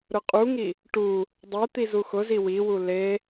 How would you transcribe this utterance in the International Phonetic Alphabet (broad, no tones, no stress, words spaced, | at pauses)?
ɾʊqʼuŋi | ʈu | dˤet̪i zuxʊzi wiwu le